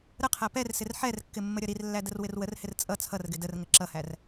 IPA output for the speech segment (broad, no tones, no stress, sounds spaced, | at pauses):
ɾ ə qʰ æ p ɛ r s ɪ r ħ ɛ r kː ɪ mː ə ɾʲ ʌ ɾ i r lː æ d ə r w ɪ r w ə r h ɪ r t͡sʼ ʌ t͡sʰ ʌ r ɡ ɪ d ə r ŋ ə ǁ ʌ h æ r